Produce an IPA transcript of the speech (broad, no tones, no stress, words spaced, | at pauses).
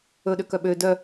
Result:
ɵɗøkœ ɓø dœ